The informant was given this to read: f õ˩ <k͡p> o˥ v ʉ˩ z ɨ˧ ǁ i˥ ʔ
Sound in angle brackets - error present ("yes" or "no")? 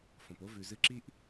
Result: yes